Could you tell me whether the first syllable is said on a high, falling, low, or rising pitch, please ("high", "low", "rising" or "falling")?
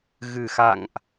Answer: low